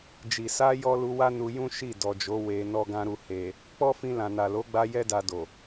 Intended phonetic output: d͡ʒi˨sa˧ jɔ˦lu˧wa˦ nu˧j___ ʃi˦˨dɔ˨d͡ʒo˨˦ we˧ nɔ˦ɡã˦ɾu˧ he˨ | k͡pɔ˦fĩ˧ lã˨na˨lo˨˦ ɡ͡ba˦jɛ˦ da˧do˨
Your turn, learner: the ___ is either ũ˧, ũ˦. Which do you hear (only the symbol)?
ũ˦